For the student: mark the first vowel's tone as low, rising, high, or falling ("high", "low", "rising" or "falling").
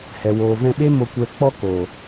low